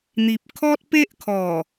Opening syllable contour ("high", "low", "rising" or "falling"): low